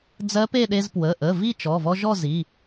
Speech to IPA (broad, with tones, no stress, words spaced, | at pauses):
d͡zɜ˧˥pe˥˨ɗe˧z pwə˩˧˩ʔə˩˧˩ vi˥˨t͡ʃɔ˩˧˩vɔ˧ ʒɔ˥˨zi˩˧˩